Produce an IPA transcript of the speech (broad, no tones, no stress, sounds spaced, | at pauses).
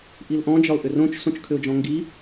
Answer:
ʔ i l ʔ ɔ̃ d͡ʒ ɒ ʊ̯ ʔ ʏ r õ t͡ʃ s õ t͡ʃ kʰ ʏ ʊ̯ d͡ʒ ɔ̃ ŋ ɡ i